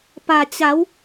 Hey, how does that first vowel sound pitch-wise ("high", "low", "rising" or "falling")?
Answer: low